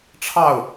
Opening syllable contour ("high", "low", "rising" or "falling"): falling